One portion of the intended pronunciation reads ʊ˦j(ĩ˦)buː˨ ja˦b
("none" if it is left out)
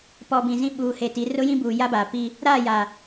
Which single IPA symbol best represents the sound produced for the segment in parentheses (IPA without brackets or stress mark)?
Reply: ĩ˦